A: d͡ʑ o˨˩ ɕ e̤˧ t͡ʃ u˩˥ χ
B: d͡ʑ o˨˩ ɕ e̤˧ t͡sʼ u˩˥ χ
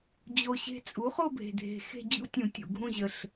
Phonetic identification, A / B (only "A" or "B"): B